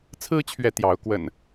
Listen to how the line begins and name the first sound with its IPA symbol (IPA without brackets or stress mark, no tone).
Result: t͡sʰ